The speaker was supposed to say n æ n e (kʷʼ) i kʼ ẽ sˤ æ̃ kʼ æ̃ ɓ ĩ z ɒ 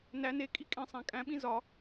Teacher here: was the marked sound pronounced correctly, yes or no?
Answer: no